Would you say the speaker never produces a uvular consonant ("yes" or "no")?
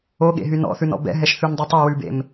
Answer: yes